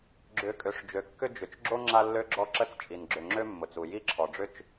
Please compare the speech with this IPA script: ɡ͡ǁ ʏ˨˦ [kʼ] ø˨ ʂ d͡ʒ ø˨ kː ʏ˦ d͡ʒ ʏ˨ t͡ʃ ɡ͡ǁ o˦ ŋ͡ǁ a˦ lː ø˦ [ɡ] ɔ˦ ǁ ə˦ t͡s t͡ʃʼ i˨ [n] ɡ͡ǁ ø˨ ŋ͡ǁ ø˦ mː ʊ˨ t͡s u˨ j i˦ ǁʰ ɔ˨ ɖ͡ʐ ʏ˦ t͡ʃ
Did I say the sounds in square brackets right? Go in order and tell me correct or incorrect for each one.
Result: correct, incorrect, correct

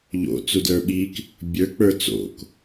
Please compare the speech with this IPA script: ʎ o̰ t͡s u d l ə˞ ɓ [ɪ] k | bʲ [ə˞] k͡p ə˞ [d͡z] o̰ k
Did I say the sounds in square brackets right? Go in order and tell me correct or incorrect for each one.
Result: incorrect, correct, incorrect

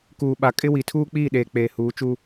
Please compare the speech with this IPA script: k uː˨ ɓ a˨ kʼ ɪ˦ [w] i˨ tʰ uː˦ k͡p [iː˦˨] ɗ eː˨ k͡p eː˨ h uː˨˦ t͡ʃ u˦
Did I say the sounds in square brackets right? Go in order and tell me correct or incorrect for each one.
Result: correct, correct

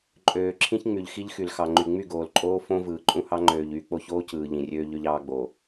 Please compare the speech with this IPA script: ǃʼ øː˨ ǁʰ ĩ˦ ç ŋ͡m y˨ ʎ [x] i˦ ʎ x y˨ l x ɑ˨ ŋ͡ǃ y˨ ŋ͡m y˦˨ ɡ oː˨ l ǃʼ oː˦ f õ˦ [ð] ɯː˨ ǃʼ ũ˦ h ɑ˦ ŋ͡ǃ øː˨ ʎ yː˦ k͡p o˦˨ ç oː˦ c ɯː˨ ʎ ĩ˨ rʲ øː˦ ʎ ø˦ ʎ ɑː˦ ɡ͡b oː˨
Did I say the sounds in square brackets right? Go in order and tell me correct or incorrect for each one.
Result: correct, incorrect

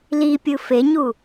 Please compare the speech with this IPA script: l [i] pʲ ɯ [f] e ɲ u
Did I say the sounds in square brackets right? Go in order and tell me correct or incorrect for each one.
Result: correct, correct

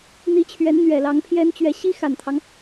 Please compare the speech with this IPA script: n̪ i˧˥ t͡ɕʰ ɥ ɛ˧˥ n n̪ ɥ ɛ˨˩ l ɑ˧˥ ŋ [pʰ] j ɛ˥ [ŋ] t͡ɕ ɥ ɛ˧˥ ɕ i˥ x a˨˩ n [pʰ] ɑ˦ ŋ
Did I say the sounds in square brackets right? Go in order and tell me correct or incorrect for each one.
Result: correct, incorrect, incorrect

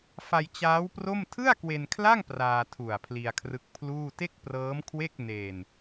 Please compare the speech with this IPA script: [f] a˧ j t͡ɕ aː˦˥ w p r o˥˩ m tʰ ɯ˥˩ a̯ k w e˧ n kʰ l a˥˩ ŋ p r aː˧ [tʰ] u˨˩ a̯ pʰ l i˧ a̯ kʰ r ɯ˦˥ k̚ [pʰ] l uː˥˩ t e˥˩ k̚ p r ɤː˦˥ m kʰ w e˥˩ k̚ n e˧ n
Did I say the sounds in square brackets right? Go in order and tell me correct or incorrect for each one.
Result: correct, correct, correct

